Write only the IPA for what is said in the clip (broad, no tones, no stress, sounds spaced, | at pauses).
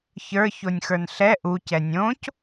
ç ə˞ ç o nʲ x ə˞ n ɬ ɛ ʔ u c ɛ nʲ õ c